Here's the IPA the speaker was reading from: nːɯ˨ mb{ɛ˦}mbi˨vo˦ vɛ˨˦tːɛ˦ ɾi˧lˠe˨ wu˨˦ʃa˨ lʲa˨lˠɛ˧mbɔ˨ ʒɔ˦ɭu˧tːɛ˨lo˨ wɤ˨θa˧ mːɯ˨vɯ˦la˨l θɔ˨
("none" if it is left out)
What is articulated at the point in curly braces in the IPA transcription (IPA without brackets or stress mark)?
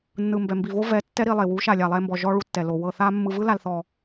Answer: ɛ˨